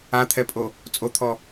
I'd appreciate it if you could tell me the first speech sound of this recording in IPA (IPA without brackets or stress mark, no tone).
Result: a